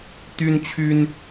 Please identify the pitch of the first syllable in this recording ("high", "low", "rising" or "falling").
high